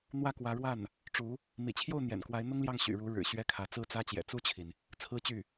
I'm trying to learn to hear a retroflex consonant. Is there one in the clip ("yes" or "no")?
yes